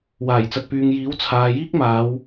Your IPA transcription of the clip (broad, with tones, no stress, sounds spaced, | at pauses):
w aː˨˩ j t͡s ɐ˨ t̚ p yː˨ ŋ j iː˨˥ w t͡sʰ aː˨ j iː˥ k̚ m aː˨˧ w